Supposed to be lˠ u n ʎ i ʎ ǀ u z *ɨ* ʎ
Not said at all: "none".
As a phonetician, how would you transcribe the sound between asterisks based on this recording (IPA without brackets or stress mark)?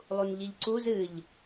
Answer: ɨ